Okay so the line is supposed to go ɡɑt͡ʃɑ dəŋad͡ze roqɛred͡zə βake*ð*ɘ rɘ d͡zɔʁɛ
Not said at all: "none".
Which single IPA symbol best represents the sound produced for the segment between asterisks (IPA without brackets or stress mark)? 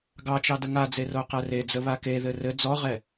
ð